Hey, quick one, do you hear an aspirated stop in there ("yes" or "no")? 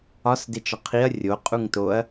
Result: yes